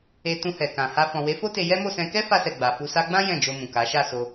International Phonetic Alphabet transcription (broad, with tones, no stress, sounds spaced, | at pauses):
e˧ t ũ˧ h ɛ˨ k ã˨ h a˧ f ɔ̃˨ w e˨˦ f o˦ t e˧ j ɛ˦ m o˦˨ s ɛ̃˧ k ɛ˦ f a˧ s ɛ˨ ɡ͡b a˨ f u˧ s a˦ ɡ͡b ã˦ j ɛ̃˦˨ d͡ʒ o˧ m ũ˨ k a˨˦ ʃ a˦˨ s o˧